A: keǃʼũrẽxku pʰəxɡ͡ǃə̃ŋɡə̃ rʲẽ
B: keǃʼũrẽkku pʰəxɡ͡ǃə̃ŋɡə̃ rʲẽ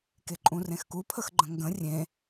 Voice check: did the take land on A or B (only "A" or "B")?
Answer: A